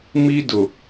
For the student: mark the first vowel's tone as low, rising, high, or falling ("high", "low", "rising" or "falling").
high